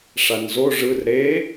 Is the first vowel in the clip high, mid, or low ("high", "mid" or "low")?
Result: low